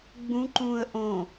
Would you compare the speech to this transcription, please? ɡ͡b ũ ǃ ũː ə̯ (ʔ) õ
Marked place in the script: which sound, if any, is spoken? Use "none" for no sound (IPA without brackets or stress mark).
ʔ